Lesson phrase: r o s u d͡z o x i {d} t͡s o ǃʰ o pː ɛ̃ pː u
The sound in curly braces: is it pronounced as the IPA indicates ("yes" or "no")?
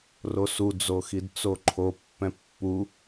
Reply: yes